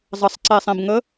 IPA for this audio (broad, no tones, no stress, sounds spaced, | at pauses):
zˤ ə sˤ ǀ e sˤ ẽ b ŋ ə